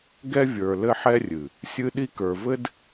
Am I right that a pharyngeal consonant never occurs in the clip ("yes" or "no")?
no